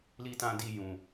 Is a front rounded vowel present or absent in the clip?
absent